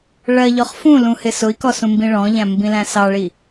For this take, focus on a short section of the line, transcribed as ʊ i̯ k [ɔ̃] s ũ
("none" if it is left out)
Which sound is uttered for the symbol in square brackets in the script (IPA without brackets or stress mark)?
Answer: ɔ